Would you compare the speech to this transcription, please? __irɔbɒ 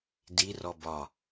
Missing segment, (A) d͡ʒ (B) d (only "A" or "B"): B